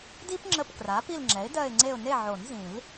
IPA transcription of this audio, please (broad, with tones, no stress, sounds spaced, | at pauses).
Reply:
d i˥ p ŋ͡ǁ ə˦˨ p k r a˩˥ p i˦˨ l ŋ͡ǁ ɛ˩˥ ɪ̯ d ɜ˦˨ ɪ̯ ŋ͡ǀ e˦˨ ʊ̯ n e˦˨ ʕ o˨˩˦ n z ĩ˨˩˦ l